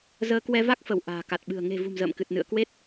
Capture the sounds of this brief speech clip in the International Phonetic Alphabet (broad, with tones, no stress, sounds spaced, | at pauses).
z əː˧ k w ɛ˧ v a˦˥ k̚ f ə˧˩ w ʔ a̤ː˨˩ k a˨˩ t̚ ɓ ɨ̤˨˩ ə̯ ŋ e̤˨˩ v ṳ˨˩ m z ə̰ː˧˨ m k ɨ˨˩ t̚ n ɨ̰˧˨ ə̯ k w e˦˥ t̚